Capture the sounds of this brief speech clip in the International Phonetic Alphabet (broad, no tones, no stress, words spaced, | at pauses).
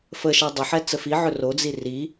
fəʃɛ dˤəħɛ t͡səfiʕɵ rod͡zi ri